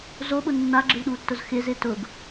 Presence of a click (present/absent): present